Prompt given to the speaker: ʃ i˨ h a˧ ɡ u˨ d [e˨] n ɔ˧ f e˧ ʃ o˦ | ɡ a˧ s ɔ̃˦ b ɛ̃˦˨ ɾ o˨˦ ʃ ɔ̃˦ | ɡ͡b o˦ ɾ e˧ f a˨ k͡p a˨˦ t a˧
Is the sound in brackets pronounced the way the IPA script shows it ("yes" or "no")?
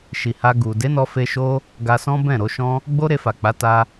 no